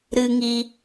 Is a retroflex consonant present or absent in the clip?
absent